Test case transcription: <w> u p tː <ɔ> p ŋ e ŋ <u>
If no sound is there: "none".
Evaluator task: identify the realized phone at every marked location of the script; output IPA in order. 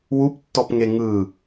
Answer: w, ɔ, ɯ

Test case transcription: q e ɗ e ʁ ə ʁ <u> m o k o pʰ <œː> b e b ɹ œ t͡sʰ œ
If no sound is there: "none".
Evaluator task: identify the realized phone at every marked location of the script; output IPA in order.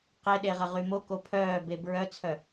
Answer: y, œː

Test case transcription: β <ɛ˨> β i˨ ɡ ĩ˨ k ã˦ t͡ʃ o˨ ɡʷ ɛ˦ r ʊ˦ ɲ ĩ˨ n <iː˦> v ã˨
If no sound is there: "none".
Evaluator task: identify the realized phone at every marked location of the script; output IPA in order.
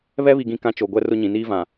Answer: ɛ˦, iː˦

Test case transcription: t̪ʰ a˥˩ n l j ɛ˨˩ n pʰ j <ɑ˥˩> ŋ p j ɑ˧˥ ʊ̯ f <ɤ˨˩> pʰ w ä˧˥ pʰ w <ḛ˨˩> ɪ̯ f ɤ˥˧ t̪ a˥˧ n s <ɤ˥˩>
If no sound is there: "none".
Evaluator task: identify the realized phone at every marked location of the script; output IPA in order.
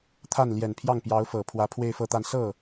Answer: ɑ˥˩, ɤ˨˩, e˥˧, ɤ˥˩

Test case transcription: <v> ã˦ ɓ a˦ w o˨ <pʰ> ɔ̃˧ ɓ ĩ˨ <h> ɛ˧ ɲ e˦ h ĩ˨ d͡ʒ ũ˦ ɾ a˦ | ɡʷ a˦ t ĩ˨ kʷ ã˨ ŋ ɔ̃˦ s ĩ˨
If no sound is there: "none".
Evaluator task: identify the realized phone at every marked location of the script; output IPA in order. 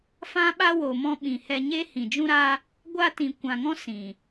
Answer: f, m, h

